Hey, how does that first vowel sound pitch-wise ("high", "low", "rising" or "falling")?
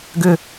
high